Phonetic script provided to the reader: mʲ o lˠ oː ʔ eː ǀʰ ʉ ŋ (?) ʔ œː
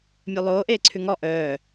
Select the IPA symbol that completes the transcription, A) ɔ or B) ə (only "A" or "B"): A